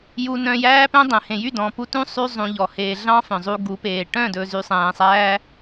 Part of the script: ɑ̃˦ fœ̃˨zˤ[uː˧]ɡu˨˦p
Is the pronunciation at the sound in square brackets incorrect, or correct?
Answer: incorrect